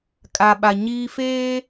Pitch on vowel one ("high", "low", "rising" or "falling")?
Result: low